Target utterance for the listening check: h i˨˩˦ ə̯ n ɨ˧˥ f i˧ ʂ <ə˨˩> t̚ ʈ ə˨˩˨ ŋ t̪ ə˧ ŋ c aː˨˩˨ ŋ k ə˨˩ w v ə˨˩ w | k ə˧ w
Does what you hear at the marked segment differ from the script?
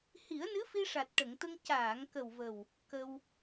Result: yes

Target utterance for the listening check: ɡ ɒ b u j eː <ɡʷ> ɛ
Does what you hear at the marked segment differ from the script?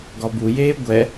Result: no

